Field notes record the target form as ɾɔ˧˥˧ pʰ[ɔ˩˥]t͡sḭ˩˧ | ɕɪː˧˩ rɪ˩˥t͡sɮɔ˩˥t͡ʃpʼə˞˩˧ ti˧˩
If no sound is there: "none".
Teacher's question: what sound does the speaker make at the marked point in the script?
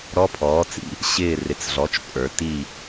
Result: ɔː˩˥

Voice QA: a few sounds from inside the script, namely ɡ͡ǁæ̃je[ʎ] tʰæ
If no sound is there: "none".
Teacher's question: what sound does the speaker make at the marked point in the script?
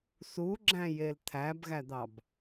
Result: l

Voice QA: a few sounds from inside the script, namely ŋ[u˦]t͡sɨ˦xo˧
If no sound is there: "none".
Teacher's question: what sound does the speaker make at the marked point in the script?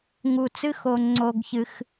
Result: u˧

